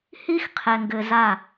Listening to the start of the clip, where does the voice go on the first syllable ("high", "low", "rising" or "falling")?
high